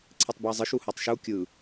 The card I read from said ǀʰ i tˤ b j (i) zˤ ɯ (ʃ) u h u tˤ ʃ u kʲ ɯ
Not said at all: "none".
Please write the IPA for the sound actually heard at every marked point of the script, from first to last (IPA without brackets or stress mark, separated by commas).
i, ʃ